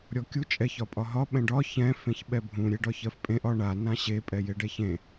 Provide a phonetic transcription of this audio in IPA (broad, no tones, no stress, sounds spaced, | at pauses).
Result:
ɾʲ ɔ kʲ u t͡ʃʼ ɛ ç ɒ pʼ ɒ ɦ ɒ ɓ ɛ̃ ɖ ɒ ç ɛ̃ f ẽ ç ɓ ɛ bʱ ũ ɾʲ e ɖ ɒ ç ɜ f pʼ ẽ ʔ ɒ ɳ a n ã ɕ e pʼ ɛ j e ɖ ɛ ç ẽ